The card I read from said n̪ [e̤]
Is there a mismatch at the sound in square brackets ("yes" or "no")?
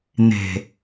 no